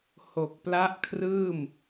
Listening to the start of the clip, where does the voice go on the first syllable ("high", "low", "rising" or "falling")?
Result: low